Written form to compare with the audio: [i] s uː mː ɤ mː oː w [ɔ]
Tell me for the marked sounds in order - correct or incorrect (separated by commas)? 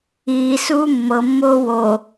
incorrect, incorrect